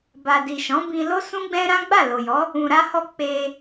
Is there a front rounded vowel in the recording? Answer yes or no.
no